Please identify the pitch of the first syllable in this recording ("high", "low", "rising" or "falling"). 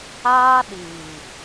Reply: high